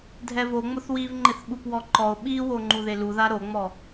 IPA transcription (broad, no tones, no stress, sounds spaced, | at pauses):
dʱ ɛ v o ŋ͡m ʊ θ w i v ŋ͡ǃ ɪ θ ɓ u p w ɔ ǃ ɔ o̯ ɓ i w o ŋ͡ǃ u ð e l u ð a ɾ o ŋ͡m ɔ